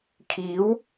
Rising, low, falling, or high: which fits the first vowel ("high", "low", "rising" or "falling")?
rising